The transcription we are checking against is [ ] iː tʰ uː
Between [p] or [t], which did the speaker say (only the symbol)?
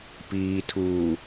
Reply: p